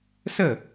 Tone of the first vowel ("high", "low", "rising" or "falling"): falling